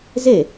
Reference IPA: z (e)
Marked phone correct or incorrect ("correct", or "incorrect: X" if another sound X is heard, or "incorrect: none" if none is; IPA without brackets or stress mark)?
correct